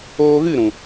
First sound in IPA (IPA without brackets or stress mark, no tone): oː